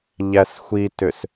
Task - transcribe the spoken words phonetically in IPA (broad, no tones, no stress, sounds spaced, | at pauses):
ʎ æ s xʷ i t ʏ s